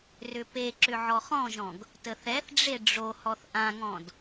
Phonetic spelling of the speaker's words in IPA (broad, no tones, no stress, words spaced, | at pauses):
rʏpeǁʏ ʕɔχɔ̃ʒɔ̃ɡ | təθɛθɖ͡ʐe ɖ͡ʐohɔθ ʔãŋɔ̃d